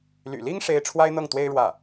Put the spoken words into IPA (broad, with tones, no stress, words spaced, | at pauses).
ly̰˨˩li˥ŋ ʂe˥ɪ̯ ʈ͡ʂʰwa˥ɪ̯n̪ɤ˥˩ŋt̪we˥ɪ̯ ɻwä˥˩